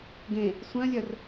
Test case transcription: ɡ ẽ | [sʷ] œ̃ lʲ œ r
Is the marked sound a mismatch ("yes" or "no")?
no